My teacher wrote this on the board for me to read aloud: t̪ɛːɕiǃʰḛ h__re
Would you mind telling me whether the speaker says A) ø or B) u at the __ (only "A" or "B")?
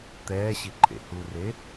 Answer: B